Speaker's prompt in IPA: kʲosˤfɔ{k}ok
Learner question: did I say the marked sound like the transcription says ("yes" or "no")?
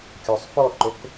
no